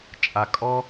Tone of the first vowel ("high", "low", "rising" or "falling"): low